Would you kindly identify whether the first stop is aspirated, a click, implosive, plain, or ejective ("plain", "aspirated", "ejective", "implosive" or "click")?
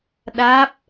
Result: implosive